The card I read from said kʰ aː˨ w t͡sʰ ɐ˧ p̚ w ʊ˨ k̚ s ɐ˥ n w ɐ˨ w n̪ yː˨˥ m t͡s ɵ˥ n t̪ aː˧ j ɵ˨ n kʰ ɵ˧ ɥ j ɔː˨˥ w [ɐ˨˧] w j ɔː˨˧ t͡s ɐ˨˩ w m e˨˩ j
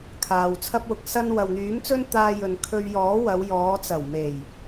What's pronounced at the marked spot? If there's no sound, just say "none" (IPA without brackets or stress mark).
ɐ˨˧